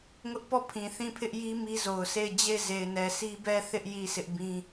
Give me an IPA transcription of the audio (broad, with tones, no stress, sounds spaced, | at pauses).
ŋ ʊ˦ ʔ p ɔ˦˨ pʰ ĩ˨ θ ĩ˦˨ pʰ ɪ˦ ʔ j i˦ m i˦ z o˨ ʊ̯ s e˦˨ ɪ̯ d͡ʑ e˦˨ ɪ̯ z e˨ ɪ̯ n ɛ˨ s i˦ b ɛ˦˨ θ ɪ˦ ʔ j i˦˨ s ɪ˦ ʔ b ĩ˦